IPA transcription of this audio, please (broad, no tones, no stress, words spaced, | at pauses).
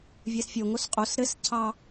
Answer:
vʲɛsfʲoŋos qʼos ɾɘscʰɑ